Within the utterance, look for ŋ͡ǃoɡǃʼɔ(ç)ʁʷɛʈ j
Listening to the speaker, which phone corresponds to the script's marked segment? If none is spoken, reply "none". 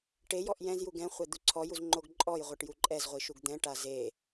j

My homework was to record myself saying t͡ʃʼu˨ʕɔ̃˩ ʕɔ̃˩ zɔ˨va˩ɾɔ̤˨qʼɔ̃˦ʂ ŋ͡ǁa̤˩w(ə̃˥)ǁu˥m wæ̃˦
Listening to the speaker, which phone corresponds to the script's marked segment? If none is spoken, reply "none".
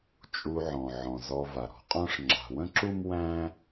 ə̃˥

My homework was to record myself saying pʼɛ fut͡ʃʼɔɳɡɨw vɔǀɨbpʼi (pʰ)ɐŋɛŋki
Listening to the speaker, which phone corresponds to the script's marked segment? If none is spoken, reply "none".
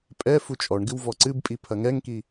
pʰ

